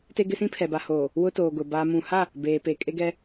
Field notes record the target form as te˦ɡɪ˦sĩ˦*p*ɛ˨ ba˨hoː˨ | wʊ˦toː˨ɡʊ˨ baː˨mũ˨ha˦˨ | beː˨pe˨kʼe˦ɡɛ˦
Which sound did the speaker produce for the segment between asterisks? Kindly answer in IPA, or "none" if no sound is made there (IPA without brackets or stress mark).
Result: pʰ